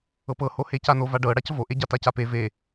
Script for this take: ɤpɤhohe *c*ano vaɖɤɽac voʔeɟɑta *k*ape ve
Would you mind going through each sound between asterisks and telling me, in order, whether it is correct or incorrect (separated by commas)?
correct, incorrect